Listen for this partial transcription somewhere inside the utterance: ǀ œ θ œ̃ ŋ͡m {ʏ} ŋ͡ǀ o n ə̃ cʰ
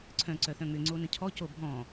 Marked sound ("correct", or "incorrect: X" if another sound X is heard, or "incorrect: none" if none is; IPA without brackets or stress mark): correct